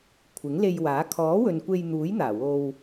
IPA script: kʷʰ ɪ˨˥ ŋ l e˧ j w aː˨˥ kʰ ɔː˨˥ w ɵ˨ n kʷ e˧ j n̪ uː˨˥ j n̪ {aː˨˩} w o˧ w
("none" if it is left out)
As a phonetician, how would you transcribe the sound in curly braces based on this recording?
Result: aː˨˩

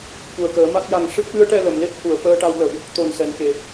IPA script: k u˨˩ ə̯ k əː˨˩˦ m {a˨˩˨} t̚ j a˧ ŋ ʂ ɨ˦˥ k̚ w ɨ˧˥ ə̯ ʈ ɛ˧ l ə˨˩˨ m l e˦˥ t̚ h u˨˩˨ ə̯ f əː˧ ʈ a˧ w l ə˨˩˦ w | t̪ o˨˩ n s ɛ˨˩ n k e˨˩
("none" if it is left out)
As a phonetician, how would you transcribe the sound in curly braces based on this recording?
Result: a˦˥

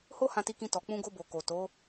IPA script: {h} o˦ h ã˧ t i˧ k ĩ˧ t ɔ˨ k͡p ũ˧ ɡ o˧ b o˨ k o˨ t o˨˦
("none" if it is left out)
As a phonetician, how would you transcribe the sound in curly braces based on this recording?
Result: h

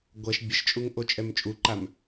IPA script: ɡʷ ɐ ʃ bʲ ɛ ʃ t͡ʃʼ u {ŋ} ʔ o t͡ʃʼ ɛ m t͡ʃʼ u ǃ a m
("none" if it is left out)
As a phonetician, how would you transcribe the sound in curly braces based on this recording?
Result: ŋ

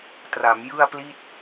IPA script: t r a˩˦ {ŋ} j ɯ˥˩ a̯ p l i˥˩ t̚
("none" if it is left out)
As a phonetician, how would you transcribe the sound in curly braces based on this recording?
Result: m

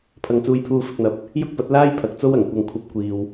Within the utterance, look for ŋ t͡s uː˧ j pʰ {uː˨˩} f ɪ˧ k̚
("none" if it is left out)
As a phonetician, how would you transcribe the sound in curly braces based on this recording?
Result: uː˧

